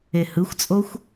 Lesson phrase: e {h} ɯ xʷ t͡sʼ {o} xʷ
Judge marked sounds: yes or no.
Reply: yes, yes

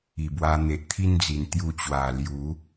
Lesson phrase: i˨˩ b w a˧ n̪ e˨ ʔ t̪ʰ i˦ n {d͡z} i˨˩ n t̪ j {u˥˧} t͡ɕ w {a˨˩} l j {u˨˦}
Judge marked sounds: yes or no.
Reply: yes, no, yes, yes

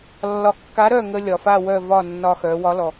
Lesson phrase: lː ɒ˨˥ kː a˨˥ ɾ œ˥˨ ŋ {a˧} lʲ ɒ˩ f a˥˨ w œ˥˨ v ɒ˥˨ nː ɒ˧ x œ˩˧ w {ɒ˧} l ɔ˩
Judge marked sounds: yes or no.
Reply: no, no

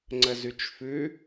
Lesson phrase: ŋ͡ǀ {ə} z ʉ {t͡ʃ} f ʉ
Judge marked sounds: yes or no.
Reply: yes, yes

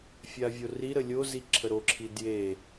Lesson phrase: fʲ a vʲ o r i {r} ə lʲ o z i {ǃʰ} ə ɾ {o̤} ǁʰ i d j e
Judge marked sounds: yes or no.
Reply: no, no, no

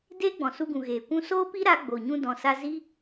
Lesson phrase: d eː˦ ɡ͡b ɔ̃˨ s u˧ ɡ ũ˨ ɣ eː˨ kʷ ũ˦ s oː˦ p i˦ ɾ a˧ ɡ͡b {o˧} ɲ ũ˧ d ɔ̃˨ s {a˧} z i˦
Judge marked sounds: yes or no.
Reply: no, yes

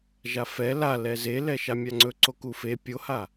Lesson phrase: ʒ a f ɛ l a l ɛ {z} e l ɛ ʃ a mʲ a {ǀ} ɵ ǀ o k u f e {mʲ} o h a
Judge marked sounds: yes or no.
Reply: yes, no, no

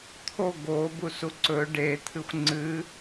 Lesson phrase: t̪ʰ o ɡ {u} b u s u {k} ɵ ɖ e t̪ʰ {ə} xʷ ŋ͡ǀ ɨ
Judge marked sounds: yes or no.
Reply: no, no, no

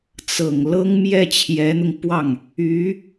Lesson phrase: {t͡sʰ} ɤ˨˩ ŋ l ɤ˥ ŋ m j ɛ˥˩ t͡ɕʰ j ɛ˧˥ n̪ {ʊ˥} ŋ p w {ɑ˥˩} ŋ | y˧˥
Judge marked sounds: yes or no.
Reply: no, no, yes

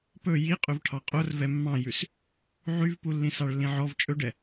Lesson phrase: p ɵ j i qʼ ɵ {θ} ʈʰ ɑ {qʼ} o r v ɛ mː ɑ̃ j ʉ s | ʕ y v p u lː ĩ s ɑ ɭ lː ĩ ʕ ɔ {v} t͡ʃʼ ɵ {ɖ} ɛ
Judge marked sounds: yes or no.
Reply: no, yes, yes, yes

